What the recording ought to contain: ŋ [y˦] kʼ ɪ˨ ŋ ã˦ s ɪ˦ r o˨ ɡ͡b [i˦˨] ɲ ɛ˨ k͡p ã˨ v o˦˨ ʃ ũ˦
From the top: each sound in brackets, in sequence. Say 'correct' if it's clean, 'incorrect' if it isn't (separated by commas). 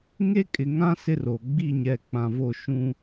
incorrect, correct